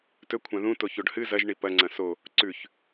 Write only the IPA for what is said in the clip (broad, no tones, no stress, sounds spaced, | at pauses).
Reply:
t ɵ kʷʰ ã ð ũ t o ç o ɖ h ɨ z ɐ ʒ ɳ i p ɐ ŋ͡ǀ ɐ̃ s o | ǀ ʉ ç